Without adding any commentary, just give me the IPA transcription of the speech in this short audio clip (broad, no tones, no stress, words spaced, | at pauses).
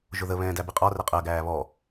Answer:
ʒʊðə βɛ̃ːdæbiqʼɒ rɛqʼɜ ɡæːβɔ